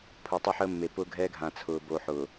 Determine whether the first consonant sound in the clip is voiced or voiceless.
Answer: voiceless